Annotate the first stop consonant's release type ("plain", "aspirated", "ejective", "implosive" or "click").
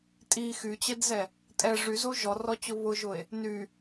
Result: ejective